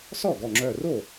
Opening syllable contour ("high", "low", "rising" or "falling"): falling